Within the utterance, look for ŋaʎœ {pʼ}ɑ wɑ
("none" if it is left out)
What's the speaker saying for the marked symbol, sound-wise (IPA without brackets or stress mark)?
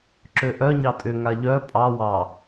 pʼ